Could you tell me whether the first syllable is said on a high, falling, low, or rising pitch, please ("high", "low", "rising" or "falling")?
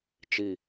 falling